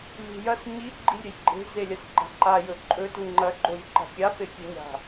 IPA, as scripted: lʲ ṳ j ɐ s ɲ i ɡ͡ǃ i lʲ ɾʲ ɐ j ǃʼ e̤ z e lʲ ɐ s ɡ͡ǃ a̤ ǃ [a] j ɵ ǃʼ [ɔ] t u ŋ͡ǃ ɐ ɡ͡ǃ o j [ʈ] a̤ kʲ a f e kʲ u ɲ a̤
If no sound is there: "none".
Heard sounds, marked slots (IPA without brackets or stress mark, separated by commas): a, ɵ, ǃ